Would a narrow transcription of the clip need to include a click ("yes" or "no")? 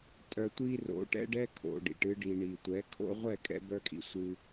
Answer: no